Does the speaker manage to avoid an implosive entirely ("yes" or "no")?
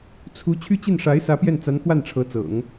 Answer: yes